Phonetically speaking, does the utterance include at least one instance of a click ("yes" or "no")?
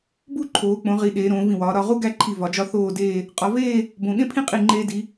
yes